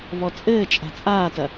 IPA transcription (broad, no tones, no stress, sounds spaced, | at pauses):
v ɔ t͡sʼ ɘː t͡ʃʼ a̤ t͡sʼ aː t ɐ